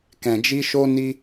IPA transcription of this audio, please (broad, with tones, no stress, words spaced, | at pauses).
kɛ̃˧d͡ʒi˦ ʃo˦ni˦